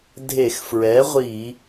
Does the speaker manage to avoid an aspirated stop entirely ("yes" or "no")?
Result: yes